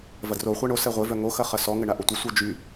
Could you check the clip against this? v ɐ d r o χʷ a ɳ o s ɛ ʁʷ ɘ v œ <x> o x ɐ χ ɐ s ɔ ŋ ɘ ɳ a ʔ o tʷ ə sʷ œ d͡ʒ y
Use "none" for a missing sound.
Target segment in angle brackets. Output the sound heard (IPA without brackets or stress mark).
ŋ